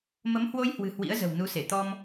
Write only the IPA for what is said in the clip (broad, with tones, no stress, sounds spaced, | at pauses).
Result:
m ə˨˦ m h w o˧ j h w ɨ̤˨˩ h w ḭ˧˥ ə̯ z ə̤˨˩ w n u˨˦ s e˧˩ t̪ ɔ˧ m